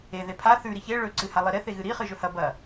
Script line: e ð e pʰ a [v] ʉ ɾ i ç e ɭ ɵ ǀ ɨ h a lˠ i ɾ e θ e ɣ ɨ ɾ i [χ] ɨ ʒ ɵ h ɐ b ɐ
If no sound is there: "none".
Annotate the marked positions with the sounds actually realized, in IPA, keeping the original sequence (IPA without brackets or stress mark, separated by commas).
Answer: θ, χ